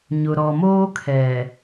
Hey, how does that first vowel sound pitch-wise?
low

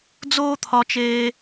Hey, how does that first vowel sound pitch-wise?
high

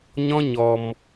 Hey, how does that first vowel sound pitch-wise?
high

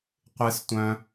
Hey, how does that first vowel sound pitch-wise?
high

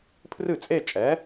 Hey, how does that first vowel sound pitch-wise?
falling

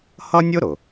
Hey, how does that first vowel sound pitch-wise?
high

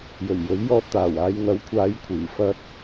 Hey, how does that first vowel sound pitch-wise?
low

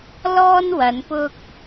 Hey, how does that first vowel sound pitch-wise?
high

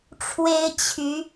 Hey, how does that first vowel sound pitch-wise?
high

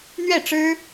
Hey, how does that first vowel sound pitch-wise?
falling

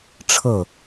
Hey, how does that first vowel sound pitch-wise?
falling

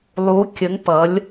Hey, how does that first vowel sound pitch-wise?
rising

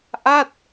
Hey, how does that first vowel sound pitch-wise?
falling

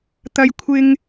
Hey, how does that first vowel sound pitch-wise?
high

